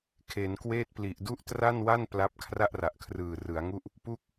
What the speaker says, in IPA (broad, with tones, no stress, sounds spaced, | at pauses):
kʰ e˩˦ n k w eː˥˩ t̚ p l i˨˩ ʔ d u˥˩ ʔ t r a˥˩ n w a˥˩ n p l a˦˥ p̚ kʰ r a˥˩ ʔ r a˨˩ ʔ kʰ r ɯː˨˩ r ɯ˩˦ a̯ ŋ u˥˩ ʔ | p u˥˩ k̚